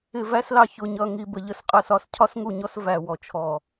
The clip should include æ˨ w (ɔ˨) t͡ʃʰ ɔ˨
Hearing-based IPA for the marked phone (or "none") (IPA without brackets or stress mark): ɔ˨